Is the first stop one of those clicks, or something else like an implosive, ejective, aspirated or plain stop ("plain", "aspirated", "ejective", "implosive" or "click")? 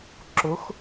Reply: click